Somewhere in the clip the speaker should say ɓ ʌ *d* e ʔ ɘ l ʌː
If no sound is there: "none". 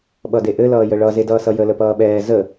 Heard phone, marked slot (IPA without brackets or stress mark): d